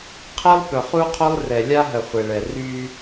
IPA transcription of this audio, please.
qʰ e˦ lˠ p œ˨ χ u˦ qʰ œ˦ lˠ r ɛ˨ lʲ a˦ ɦ ə˨ χʷ e˨ ɭ ɛ˨ r y˦

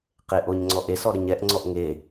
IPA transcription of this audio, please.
q e ʔ o ɲ ŋ͡ǀ ɔ ʔ e s ɔ ɾ ə ɲ ɛ ʔ ŋ͡ǀ ɔ ʔ ŋ e

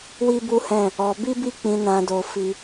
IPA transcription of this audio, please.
w i˦ b u˦ h ɛ̃˦˨ | ɔ˧ b i˦ b i˦˨ k͡p ĩ˧ n ã˧ d o˧ f i˧

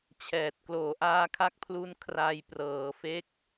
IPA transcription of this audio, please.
t͡ɕʰ ɛː˨˩ t̚ k l oː˨˩ ʔ aː˧ kʰ a˦˥ k̚ pʰ l u˧ n kʰ r a˧ j p r ɤː˩˦ f e˦˥ k̚

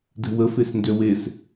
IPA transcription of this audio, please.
d ɛ̤ w ə f e s n d ø w e s

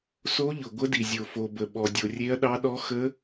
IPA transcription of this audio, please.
s o˧˥ ʎ ʊ˩ ɡʷ ə˧˥ d i˩ zʲ o˩ f o˩ b ə˩ ɓ ɔ˩ dʲ o˩ rʲ e˧˥ ɐ̯ ɗ ɑ˧˥ ɗ ɔ˧˥ x ə˧˥

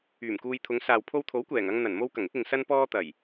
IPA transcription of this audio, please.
yː˨˩ m k uː˧ j t̪ʰ ʊ˨˧ ŋ s aː˨ w pʰ o˧ w t̪ʰ o˨˥ w kʷ ɛː˨˩ ŋ ɐ˧ ŋ n̪ ɐ˨˩ n m o˧ w k ɐ˨˩ ŋ ɪ˨˥ k̚ ɪ˨ ŋ s ɐ˥ n p ɔː˥ t̪ ɐ˨˩ j

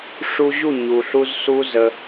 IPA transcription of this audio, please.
ʂ u˧ ʑ u˦˨ ɲ u˨ ɬ u˧ z s u˦ z ə˧

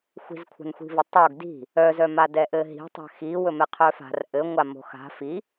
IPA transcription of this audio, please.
xʷ i̤ z kʷʰ a̤ n xʷ i̤ v ɘ tˤ o ɡ d i̤ | œ z œ m a d ɛ ʔ ɘ ɦ i̤ tˤ ɛ̤ x i w ɵ m ɛ qʰ œ f a̤ r ʔ ɘ ŋʷ a m o̤ x a̤ f i

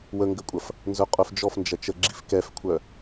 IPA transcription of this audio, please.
w ə ŋ ɡ ə kʷʼ ɐ f | n z œ qʼ œ f d͡ʒ ɔ f n d͡ʒ ɐ t͡ʃ ə ɡ͡ǁ i f k ɛ f kʷʰ œ

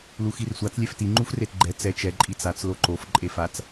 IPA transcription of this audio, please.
l u x i r sʷ a t͡s lʲ ɛ f t i ŋ͡ǃ u f r e t ɡ͡ǃ ɛ t͡s ɛ t͡ʃ ɛ ǃʼ i t͡s a t͡s l o ǃ o f ǃʼ e f a t͡s

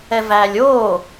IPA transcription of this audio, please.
ɛ v æː lʲ oː

